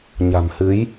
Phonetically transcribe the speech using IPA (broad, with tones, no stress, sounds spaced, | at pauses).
ɲ a̤˨˩ m h ɨ˨˦ j